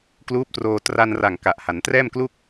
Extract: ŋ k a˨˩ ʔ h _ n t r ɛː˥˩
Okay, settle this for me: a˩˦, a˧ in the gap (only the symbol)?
a˩˦